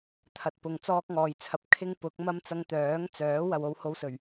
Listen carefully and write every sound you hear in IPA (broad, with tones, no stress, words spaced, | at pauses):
t̪ʰɐ˨t̚pʊ˨ŋ t͡sɔː˥k̚ŋɔː˨jt͡sʰɐ˧p̚ kʰɪ˥ŋpʊ˨˥k̚mɐ˥m t͡sɐ˧ŋt̪œː˨˥ŋt͡sœː˨˥ wɐ˧w o˥who˥wsɵ˨˩ɥ